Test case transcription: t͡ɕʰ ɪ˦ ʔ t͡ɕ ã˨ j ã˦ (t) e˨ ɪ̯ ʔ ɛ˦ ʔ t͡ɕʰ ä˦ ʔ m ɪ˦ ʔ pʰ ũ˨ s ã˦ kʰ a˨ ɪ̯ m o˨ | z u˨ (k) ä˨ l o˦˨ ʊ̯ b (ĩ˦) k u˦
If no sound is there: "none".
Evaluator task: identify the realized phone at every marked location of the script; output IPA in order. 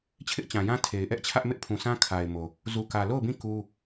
tʰ, k, ĩ˦˨

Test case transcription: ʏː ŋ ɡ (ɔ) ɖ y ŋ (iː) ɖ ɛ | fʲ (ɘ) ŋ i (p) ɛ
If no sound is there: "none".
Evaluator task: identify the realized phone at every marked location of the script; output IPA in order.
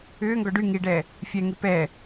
ɔ, i, ɛ, p

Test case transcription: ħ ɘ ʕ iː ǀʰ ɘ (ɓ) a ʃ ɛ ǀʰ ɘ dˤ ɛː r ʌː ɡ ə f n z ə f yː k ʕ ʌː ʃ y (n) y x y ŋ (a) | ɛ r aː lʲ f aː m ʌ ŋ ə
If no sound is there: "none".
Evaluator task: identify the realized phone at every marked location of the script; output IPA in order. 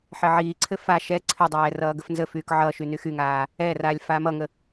f, n, aː

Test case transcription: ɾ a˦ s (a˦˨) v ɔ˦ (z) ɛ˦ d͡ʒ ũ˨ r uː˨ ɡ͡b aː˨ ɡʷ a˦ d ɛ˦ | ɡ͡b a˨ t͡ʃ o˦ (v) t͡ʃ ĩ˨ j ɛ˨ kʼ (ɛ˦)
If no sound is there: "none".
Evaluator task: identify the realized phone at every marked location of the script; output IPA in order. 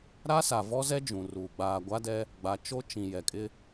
a˨, z, none, ɪ˦

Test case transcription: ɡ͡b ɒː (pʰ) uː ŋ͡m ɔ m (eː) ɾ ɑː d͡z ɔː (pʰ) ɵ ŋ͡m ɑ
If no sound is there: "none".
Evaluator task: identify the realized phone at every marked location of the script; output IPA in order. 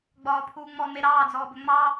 pʰ, e, b

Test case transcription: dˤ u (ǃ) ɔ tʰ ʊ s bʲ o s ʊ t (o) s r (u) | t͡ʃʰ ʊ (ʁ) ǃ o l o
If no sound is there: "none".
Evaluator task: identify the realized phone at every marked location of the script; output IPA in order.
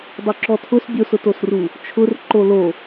ǁ, o, u, r

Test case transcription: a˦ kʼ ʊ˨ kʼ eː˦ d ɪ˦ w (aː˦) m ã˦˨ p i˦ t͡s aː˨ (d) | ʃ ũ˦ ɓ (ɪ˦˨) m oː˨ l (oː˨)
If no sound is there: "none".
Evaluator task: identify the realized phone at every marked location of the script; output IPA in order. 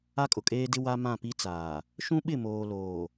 a˦, none, ɪ˦˨, oː˨

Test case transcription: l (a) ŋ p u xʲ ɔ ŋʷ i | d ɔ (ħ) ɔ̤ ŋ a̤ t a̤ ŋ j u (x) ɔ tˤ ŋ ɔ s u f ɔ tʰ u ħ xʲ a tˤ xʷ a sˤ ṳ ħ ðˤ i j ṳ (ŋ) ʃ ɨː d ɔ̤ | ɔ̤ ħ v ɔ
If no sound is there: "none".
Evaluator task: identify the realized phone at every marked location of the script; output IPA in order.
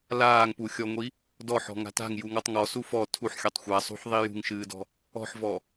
aː, ħ, ŋ, ŋ

